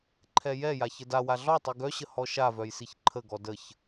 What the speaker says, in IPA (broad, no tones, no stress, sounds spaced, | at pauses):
ǃʰ ɛ j ɛ j a ç ə d a w a ɮ ɔ tˤ i ɡ œ ɕ ə h ɔ ʃ a v œ j s i ç ǃʰ ə ɡ ɔ d ə ç